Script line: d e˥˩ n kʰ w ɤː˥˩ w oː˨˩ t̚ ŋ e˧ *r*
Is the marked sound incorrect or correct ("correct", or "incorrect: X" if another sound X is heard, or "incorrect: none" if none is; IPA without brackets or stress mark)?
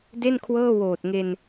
incorrect: n